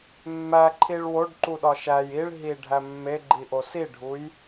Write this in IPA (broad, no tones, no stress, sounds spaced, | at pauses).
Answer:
mː æ ǃʰ i ɭ w o ɖ ǃ u ɗ ɒ ʃ æ j i ɭ ɦ i ɖʱ æ mː e ɡ͡ǃ i ʔ o s i ɖʱ u j